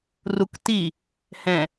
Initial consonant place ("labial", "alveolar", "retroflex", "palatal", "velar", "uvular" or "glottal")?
alveolar